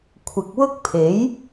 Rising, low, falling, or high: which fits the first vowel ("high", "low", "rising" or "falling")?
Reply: low